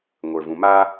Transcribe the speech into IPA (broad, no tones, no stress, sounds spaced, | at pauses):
ŋʷ ə˞ v ũ m a